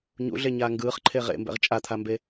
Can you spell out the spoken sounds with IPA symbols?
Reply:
ɲ ṵ ɮ e ɲ aː ŋ ɡ ɯː χ ǃʰ e ʁ ḛ m b ɛ̰ ʁ t͡ʃʼ a t̪ʰ a m b e

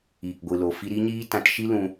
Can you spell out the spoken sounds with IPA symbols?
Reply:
iː˨ k ɡʷ ɨ˨ l o˨ f i˧ ɾ i˦ ɲ iː˦ t ã˧ t ʃ i˦ l ũ˧

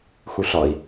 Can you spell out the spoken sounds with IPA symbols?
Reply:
x u ɬ ɒ i̯

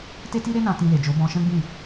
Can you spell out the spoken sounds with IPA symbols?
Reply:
t e˦ t i˦ ɾ e˦ n ã˧ t ĩ˧ l e˨ d͡ʒ o˨˦ b ɔ̃˧ ʃ ɛ̃˦ ɡ͡b ĩ˦˨

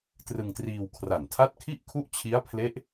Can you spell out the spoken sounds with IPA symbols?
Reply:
t r ɯ˧ ŋ t r iː˧ w kʰ r a˨˩ n tʰ a˦˥ t̚ kʰ i˥˩ ʔ kʰ u˦˥ ʔ t͡ɕʰ i˦˥ a̯ pʰ l e˦˥ ʔ

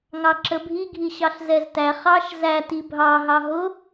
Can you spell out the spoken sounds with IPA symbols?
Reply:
ŋ ɑ ǁ ə bʱ i ɡʱ i ɕ ɑ ɬ z ɛ z t æ χ ɑ ʃ z æ t i bʱ ɑ ɦ ɑ ɦ ʊ

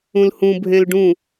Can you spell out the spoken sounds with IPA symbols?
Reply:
ũ l h ũ bʱ ẽ l ɖ ũ

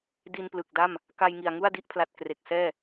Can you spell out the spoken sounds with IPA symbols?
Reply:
d i˧ n p l ɯ˨˩ k̚ d a˥˩ m | k a˧ j ŋ i˨˩ a̯ ŋ u˥˩ a̯ d i˦˥ ʔ pʰ l a˨˩ t̚ k r e˨˩ k̚ s ɛː˥˩

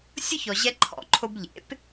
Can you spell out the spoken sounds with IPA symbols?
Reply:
sʲ ʊ˥ ç ɔ˩ ʑ ɛ˧ ǃʰ ɔ̰˩ ǃʰ o˧ b ʎ ḛ˩˥ p

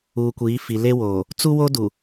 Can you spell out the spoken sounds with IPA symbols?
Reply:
uː˨ kʷ iː˨˦ f i˨ l e˦ w oː˨ | t͡s u˦ w o˦ d u˨

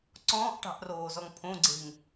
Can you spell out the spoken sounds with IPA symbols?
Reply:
ǀ ɔ̃ː ʔ ʈ ɑ̤ ʔ r oː z ɔ ŋ pʰ õ ɡ͡ǀ e̤ ŋ

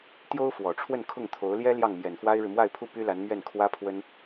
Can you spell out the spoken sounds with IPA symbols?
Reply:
t̪ j o˥ ʊ̯ f w ɔ˨˩ ʈ͡ʂʰ w ə˥˧ n kʰ ʊ˥˩ ŋ t̪ʰ o˧˥ ʊ̯ l j ɛ˥ l j ɑ˥˩ ŋ m j ɛ˨˩ n f w a˥ ɪ̯ ɻ ɻ̩˨ m w a˥˧ ɪ̯ pʰ u˥˩ p y˥ l a˧˥ n m ɥ ɛ˥˩ n kʰ w ä˥ pʰ w ə˥ n

